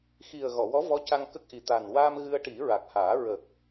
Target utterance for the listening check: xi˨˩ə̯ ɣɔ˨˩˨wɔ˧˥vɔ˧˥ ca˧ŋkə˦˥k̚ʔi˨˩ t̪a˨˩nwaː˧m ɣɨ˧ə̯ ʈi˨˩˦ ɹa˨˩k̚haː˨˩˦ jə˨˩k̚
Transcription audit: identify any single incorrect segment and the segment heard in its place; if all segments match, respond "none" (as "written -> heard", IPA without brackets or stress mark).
j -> ɹ